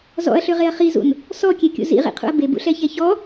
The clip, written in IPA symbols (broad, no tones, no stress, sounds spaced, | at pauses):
z ɔ̰ ɐ̯ ɬ ø ʁ e ɐ̯ χ i z ṵ n | s ɔ kʲ e kʲ ṵ z ḭ ʁ ḭ qʰ ṵ ɐ̯ b e b ṵ ɬ ɛ ç ɛ ç ɔ